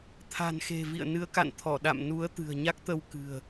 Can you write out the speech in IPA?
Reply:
t̪ʰa̤˨˩nxe̤˨˩vḭ˧˨ə̯ nɨ˨˦ə̯ka̰˧˨nt̪ʰɔ˧˩ɗa̰˧˨m nu˨˦ə̯ t̪ɨ̤˨˩ə̯ɲa˦˥k̚t̪ə˧w kɨ̤˨˩ə̯

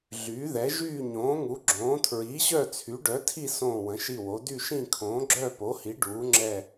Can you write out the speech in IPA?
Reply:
ɮyː˨˥ðɛ˨˥ ʒyː˥˧ɲõː˨˥ŋu˨˥ ɡ͡ǁõː˨˥ tʰɹiː˨˥ɕœ˥˧ t͡sʰy˨˥ ɖœ˨˥tʰi˥˧ sõː˥˧wə̃˨˥ʃi˥˧wo˨˥ dy˥˧ʃĩ˥˧ kʰõː˨˥ɡ͡ǁœː˥˧ po˨˥hi˨˥ ɖuː˨˥ŋ͡ǁɛ˥˧

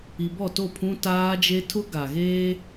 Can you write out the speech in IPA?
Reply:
i˨bɔ˦˨to˦˨ pʰũ˦taː˦d͡ʒe˦ tʰʊ˦ɡa˨ɣeː˦

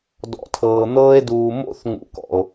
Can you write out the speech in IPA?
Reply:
dɔ̰˨tʰɤː˨n̪ɤː˧e̯ duː˨mo̰˦θ ŋṵ˨kɔ̰˨o̯

